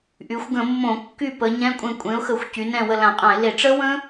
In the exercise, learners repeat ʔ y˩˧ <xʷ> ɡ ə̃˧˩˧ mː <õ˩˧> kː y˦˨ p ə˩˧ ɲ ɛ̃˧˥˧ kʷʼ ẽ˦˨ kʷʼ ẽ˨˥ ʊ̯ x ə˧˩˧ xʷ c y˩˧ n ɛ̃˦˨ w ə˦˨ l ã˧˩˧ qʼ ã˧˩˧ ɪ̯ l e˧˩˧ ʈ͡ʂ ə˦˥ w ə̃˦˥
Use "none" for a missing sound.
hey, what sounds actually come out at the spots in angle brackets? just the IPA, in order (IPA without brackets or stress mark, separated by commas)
xʷ, õ˧˩˧